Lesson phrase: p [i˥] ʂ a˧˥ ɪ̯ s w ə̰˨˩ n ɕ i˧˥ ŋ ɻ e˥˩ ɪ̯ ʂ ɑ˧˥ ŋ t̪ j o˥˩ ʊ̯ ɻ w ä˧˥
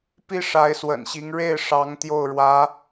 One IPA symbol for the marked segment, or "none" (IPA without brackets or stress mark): i˥